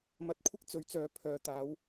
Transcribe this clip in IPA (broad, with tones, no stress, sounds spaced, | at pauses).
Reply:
m ɐ˧ t̚ kʷʰ ɪ˥ k̚ t͡s ɵ˨˥ ɥ t͡s œː˨˥ pʰ œː˨ t̪ aː˨˥ w